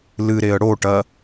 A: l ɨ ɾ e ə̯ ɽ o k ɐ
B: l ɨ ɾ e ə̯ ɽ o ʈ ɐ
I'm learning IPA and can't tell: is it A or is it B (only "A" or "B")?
B